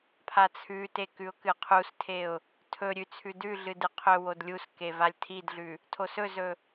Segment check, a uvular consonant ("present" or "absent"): present